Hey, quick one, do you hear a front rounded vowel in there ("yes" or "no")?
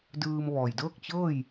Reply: no